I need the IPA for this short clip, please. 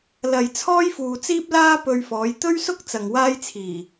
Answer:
l ɐ˨ j t͡sʰ ɔː˥ j f uː˨ t͡s iː˥ p̚ l aː˥ p ɵ˧ ɥ f ɔː˨˧ j t̪ ɵ˥ ɥ s ʊ˥ k̚ t͡s ɐ˨ ŋ w aː˥ j t͡sʰ iː˨˩

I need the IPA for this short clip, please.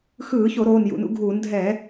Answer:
x ɯː˧˩˧ ç o˧˩˧ ɾ oː˩˧˩ n j ṵ˩˧˩ n ṵ˧˩˧ ɡʱ uː˧˩˧ n dʱ ɛː˧˩˧

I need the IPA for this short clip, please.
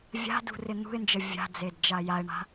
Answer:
vʲ a̤ d ṳ r ɪ n̪ ṳ ɪ̯ n d͡ʒ ə vʲ a̤ d͡z e d d͡ʒ a j a ɪ̯ ɳ a̤

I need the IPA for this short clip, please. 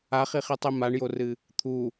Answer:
a χ i χ i tˤ i m a ɳ j o r ɨ | t̪ʰ u

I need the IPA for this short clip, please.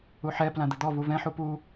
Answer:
u ħ ɛ p l ã d̪ ə d̪ ɔ v u v ɛ̃ ħ u p u

